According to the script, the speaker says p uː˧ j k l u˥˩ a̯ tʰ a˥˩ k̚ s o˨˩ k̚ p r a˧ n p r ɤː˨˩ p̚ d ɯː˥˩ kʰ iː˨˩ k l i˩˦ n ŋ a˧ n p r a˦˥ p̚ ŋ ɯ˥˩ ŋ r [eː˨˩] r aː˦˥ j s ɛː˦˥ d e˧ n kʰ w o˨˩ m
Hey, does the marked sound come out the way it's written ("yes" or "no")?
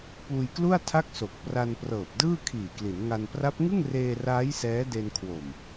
no